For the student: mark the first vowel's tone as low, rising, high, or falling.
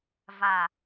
low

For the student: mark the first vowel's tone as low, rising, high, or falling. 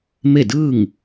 falling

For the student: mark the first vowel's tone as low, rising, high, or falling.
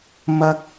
high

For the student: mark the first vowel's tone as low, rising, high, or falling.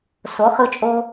rising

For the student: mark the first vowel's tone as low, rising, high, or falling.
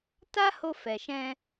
high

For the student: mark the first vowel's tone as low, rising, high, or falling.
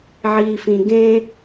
low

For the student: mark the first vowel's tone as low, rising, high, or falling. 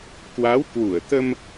rising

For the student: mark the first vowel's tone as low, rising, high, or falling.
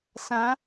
rising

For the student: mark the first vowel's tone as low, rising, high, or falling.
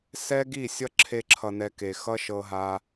high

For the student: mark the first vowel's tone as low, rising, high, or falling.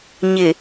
low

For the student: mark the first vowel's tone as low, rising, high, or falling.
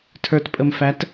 low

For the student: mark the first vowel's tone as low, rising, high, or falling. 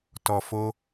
low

